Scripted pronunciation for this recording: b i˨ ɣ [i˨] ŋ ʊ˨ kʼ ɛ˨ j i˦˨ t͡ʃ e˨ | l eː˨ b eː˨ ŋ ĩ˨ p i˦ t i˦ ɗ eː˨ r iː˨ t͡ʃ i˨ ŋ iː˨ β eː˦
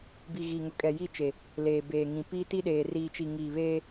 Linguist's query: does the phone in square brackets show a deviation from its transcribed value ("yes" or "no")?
no